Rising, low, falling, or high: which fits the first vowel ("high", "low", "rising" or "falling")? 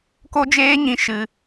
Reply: high